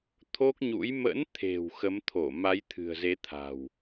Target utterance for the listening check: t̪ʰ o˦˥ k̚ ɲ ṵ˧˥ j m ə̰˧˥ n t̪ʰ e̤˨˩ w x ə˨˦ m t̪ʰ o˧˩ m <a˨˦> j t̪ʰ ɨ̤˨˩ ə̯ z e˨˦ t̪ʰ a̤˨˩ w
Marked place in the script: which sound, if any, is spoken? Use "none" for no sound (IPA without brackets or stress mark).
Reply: a˨˦